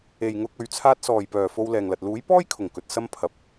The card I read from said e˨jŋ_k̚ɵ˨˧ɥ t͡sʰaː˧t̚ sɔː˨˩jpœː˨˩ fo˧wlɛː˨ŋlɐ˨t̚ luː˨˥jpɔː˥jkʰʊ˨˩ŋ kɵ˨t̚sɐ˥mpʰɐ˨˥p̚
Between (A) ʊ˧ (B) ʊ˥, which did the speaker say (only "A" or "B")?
A